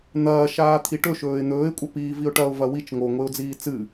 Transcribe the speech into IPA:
n̪ ɐː ʃ aː t̪ʰ i ʈ ɵ ʃ ɵː ɪ̯ n̪ ɵː ɪ̯ kʷʼ ɐ p iː v i ʊ̯ ʈ ɐ ʊ̯ v ɐ w i t͡ʃ ŋ o ŋʷ e ʊ̯ d͡z iː t͡s ɨ

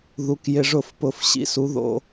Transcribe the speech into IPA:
ð u˩˧ k j ɪ˩˧˩ ʐ ʊ˧˩˧ f p ʊ˩˧ f ɕ ḭ˩˧ s u˩˧ ð o̰˩˧˩

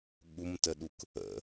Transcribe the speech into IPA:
ɠ u m t ə ɗ u k | ə̰

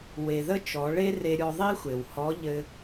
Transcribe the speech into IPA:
w e˩ ð ə˥ t͡ʃ ɔ˩˧ ɭ e˥ r e˧ ɾʲ ɔ˧ ðˤ i˥ xʷ e˩ w h ɔ˧˥ ʎ ɘ˧

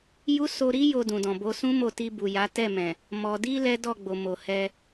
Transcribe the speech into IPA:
j u˦ s o˧ ɾ i˦ j o˧ d ũ˨ d ɔ̃˨ b o˧ s ũ˦ m o˦˨ t i˧ b u˨ j a˨˦ t ɛ˦˨ m ɛ̃˨ | m ɔ˨ d i˧ l ɛ˦ d ɔ˦˨ ɡ͡b o˨ m o˨ h ɛ˧

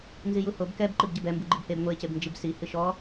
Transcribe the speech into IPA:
n z i j u h o b k ɛ b ǃ ɨ b ɟ ɘ b ɛ m b u ɡ͡ǃ i b h e b ŋʷ e c e b n d͡ʒ i b s i h ɨ ʃ ɔ

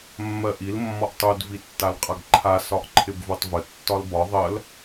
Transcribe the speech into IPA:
mː ɜ ʔ i l mː ɒ ʔ tˤ u d v i tː a l qʼ a ɡ ǃʰ a s ɒ ʔ ǃʰ ɪ b v u tˤ v ə tː ɒ l b ɒ ðˤ ɜ l

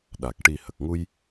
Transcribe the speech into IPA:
ɗ a˨˩ k̚ ʈ i˨˩ h ə˨˩ k̚ ŋ u˧ j

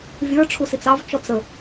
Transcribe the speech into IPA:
vʲ ə˞ ʈ͡ʂʰ u s i t͡s ɑ v t͡ʃ ɔ t͡s ə

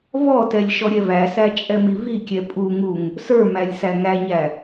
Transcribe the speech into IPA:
v ɔ t ɛ lʲ ʃ ɔ ɾʲ ɛ v æ s æ t͡ʃʼ ɛ m i v i kʲ ɛ pʼ u ŋ u ŋ | s ə˞ m æ lʲ s æ ŋ æ ɲ æ

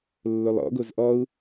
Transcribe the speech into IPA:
lː o lˠ ɔ̰ ɡ o z ʔ ɔ u̯

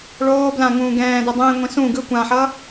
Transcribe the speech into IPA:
ɭ oː b l ã ŋ ũː ɡ ɛ̃ː d ɛ dˤ ẽː ŋʷ ĩ s ũ ɡ ɯ kʷ ã ħ ʌ

